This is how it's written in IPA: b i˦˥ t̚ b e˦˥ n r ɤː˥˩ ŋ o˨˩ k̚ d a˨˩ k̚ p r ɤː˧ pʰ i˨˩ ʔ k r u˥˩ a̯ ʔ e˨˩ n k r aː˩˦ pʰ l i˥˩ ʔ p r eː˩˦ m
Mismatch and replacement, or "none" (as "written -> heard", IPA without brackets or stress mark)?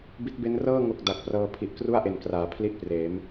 none